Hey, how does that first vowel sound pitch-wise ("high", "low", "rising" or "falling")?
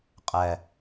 low